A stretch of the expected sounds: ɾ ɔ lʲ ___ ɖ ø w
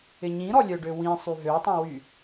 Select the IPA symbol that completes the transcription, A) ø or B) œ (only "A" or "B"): B